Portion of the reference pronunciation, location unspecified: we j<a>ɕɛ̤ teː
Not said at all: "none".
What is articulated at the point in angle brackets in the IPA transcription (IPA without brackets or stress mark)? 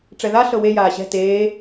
aː